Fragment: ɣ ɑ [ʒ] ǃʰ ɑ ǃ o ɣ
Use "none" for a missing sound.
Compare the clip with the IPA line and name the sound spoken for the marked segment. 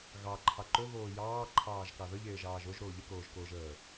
none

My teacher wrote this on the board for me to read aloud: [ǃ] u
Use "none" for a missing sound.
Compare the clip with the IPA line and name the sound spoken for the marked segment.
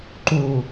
ǃ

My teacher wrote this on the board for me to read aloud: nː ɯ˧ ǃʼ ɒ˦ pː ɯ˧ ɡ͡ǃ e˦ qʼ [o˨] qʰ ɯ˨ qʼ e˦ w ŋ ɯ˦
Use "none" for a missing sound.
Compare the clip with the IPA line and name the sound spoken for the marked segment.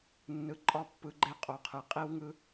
o˨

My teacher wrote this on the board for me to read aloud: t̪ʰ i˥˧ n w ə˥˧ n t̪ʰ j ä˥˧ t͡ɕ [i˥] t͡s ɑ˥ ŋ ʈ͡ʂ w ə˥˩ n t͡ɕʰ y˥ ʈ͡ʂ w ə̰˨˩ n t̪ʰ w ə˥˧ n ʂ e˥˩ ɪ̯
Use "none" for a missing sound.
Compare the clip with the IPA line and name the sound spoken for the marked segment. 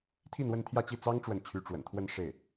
i˥˩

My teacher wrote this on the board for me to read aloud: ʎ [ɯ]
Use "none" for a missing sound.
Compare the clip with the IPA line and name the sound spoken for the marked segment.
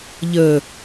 ə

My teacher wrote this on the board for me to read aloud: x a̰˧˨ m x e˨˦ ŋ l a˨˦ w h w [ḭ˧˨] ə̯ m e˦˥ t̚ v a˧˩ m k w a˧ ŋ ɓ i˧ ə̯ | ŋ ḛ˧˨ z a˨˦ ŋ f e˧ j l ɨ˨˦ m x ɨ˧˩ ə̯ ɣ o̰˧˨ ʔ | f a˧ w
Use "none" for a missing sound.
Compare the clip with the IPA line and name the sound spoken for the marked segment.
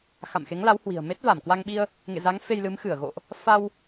i̤˨˩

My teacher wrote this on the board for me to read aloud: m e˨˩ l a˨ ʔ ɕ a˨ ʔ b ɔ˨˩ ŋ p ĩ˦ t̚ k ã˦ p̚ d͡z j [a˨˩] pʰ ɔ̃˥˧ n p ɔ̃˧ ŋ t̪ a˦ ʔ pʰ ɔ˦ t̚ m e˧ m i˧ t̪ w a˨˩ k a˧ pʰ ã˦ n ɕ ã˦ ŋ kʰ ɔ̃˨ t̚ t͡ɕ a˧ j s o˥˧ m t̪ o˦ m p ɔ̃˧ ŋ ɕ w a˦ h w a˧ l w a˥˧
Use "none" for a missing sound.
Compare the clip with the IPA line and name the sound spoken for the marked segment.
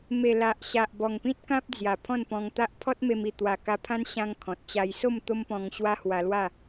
a˨˩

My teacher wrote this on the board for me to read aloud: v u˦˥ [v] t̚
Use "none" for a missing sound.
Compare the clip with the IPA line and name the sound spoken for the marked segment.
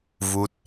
none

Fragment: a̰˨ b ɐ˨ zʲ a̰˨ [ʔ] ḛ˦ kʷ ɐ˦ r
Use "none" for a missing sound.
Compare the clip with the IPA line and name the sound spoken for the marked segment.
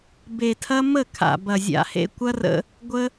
h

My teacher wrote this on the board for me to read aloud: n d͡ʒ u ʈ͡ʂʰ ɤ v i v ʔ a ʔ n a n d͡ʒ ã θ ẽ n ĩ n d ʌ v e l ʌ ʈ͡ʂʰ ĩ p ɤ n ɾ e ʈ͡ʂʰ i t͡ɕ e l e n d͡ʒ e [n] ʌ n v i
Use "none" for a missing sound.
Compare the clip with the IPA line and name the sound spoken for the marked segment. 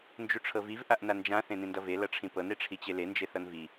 θ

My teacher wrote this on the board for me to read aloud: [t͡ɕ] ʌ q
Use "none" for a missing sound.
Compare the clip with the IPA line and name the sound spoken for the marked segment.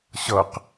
ɕ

